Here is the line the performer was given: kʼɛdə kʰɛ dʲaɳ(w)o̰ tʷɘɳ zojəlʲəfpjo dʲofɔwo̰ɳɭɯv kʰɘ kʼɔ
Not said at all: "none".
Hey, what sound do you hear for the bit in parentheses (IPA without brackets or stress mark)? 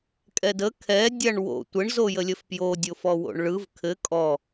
w